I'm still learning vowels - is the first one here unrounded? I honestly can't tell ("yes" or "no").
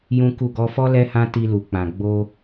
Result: no